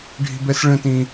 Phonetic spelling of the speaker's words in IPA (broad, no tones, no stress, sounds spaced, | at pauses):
ɖʱ i̤ b ɛ s ɭ ə̃ t ĩ